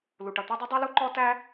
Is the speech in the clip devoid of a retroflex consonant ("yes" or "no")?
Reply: no